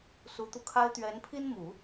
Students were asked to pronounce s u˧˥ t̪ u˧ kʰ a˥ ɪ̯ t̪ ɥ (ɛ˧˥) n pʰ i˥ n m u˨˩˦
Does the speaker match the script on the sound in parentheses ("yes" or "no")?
yes